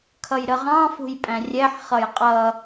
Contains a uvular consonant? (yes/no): yes